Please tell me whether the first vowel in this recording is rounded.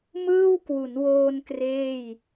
no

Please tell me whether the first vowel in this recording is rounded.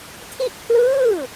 no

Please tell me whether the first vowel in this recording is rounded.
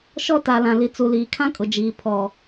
yes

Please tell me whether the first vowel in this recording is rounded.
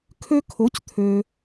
yes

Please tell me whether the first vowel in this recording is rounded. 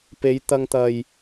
no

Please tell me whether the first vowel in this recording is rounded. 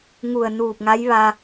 yes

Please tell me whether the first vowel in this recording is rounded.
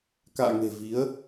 no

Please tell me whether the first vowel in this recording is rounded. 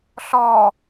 yes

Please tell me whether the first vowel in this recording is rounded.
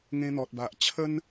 no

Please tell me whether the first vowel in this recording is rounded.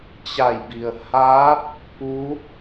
no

